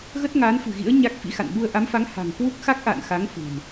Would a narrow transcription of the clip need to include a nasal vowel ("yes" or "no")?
no